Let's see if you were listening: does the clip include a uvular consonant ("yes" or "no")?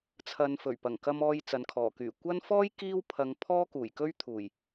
no